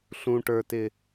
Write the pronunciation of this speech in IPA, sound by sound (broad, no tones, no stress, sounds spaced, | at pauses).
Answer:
ɬ ũ ʈ ə˞ t ɪ